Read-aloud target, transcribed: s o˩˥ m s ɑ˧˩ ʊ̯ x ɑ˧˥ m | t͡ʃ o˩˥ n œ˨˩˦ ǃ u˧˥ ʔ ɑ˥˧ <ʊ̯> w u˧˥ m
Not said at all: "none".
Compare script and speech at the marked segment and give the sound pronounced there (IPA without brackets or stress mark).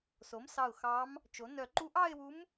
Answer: ɪ̯